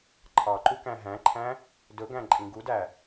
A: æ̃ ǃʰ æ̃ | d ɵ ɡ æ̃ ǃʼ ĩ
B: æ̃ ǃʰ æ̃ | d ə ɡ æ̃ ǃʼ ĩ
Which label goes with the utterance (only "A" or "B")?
A